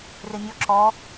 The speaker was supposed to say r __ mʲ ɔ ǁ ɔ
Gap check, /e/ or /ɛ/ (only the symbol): e